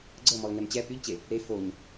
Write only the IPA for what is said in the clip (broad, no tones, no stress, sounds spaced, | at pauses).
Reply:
ɡ͡ǀ ɤ m ɔ l ŋ ɛ m t͡ɕ ɛ p y ʎ t͡ɕ e | ɾ e f o ɲ